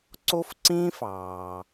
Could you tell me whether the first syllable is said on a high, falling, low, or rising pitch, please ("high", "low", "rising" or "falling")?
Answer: high